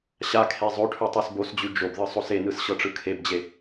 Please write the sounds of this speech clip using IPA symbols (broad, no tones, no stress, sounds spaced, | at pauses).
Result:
ɕ a kʰ e zˤ o ʈʰ ʉ tˤ e s b o s d͡ʑ ʉ d͡ʒ o b ð ɯ sˤ o s e n ɯ s ɕ ɤ ʈ͡ʂ ɯ kʰ e b d͡ʑ e